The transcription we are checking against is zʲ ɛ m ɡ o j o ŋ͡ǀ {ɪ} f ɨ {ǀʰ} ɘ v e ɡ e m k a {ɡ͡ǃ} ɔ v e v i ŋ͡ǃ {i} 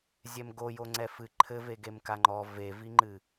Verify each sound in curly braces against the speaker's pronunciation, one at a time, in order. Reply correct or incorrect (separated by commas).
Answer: incorrect, incorrect, incorrect, incorrect